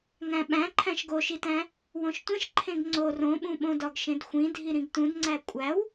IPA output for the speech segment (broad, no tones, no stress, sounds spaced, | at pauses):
ŋ æ̃ ɓ æ̃ ǃʰ æ̃ ʃ ɡ o ʃ i t æ̃ | w õ ʃ tʷ ẽ ʃ ǃʰ ẽ ɡ ŋ͡ǀ o r õ ɓ ũ ɓ õ d ɒ ɡ ʃ ẽ d xʷ ĩ dʱ i ɾ ĩ ɡ t ũ d ŋ͡ǀ æ kʷʼ æ w